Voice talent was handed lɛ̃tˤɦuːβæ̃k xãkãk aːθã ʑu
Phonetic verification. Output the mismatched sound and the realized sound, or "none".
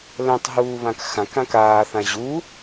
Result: æ̃ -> ã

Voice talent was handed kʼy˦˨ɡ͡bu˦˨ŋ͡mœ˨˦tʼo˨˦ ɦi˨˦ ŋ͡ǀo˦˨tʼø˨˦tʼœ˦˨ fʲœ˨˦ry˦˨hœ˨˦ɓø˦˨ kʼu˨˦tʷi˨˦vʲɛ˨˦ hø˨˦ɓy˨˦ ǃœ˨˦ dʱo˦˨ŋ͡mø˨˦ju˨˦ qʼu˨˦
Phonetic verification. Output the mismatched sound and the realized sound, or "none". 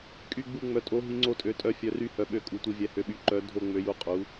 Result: none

